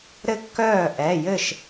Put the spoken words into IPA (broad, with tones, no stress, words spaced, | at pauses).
ɾɘ˥˩kːœː˥˩ʔɛ˩˧˩jɘ˥˩ʃ